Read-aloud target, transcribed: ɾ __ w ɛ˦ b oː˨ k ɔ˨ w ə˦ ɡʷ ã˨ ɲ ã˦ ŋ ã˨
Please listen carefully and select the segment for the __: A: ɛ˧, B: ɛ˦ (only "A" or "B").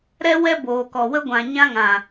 B